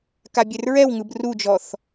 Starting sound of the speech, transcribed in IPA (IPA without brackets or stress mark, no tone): k